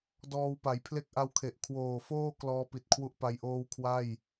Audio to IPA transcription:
d ɔː˧ w p a˩˦ j pʰ l e˦˥ k̚ ʔ a˧ w kʰ e˨˩ ʔ kʰ w oː˨˩ f oː˥˩ k l ɔː˦˥ p i˨˩ t̚ kʰ w u˦˥ ʔ p a˧ j ʔ oː˥˩ w kʰ w a˥˩ j

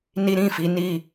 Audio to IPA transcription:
n i˦ ɾ ĩ˦˨ f i˨˦ n i˦˨

